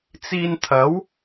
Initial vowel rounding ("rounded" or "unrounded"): unrounded